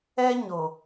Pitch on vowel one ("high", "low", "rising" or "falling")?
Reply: high